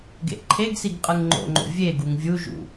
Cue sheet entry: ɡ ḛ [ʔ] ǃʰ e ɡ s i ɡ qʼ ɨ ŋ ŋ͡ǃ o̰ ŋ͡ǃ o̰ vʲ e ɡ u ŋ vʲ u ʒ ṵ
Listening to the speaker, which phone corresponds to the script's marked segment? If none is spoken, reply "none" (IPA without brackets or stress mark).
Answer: ʔ